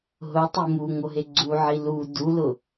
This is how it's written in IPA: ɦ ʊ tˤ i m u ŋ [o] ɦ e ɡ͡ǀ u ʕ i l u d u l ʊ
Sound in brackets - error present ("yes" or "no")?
no